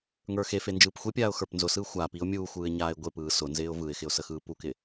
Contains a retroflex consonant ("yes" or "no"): no